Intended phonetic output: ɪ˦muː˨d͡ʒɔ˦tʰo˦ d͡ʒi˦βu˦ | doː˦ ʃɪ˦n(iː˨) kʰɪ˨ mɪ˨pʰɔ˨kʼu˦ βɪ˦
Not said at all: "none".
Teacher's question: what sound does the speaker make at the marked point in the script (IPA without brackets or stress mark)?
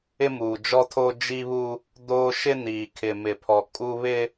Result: iː˨